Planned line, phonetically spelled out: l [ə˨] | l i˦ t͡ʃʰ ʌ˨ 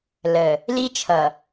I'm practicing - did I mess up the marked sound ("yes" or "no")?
no